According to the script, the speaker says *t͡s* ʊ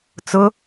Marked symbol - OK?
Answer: yes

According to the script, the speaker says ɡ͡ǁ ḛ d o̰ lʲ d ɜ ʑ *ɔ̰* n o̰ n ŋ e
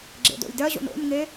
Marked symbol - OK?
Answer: no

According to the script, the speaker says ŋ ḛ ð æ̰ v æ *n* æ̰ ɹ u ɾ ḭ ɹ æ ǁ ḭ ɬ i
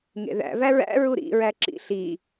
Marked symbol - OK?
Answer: no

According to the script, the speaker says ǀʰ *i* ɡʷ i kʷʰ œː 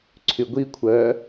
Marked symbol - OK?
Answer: no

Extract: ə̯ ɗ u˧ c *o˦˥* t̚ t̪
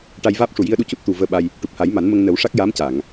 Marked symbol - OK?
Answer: no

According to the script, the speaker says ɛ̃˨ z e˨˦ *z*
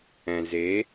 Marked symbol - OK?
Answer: no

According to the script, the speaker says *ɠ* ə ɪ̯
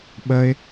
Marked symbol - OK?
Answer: no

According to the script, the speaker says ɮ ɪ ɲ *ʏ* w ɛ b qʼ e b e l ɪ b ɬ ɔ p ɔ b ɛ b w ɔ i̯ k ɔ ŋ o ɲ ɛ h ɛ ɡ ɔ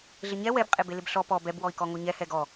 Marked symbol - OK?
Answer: no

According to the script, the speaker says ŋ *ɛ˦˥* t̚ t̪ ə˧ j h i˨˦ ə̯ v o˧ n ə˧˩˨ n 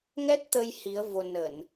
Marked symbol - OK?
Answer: yes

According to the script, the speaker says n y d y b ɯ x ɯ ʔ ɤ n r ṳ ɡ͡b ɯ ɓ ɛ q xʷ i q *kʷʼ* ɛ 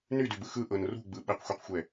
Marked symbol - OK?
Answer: no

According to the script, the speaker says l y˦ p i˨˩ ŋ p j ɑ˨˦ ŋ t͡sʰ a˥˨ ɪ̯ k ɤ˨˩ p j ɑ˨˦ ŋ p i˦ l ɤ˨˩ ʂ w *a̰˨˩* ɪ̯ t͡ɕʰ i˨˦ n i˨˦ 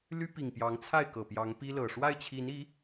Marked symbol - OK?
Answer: no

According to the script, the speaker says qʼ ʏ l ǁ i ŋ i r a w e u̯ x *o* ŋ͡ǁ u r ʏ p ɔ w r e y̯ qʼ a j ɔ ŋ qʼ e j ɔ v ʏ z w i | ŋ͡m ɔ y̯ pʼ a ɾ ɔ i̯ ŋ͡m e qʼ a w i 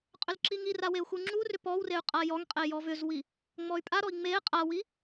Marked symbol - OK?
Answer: no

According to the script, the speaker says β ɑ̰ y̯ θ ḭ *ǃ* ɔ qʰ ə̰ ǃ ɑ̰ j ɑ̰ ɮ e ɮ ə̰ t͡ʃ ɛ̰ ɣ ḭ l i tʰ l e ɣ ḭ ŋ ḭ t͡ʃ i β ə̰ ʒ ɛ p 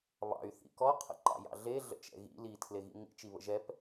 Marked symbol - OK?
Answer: no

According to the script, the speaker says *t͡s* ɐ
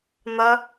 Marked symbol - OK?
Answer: no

